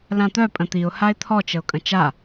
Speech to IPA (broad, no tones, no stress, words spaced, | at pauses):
lãt̪œ pʼə̃t̪iʊ̯ haɪ̯t̪ʰɔ t͡ʃəʊ̯kʼə̃t͡ʃa